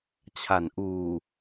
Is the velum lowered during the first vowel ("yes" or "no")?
no